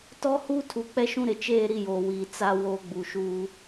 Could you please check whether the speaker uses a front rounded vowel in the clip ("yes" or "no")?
no